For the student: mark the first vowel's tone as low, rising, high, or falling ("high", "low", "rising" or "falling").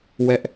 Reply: high